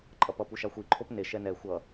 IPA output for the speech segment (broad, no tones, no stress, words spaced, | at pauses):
ǃʼʌpʌ puʃaxʷi ǃʰopne ʃɛnɛ xʷʌ